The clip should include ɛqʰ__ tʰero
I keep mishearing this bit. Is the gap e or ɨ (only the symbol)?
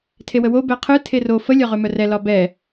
ɨ